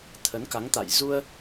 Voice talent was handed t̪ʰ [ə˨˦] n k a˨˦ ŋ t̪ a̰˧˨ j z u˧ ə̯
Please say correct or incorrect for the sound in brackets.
correct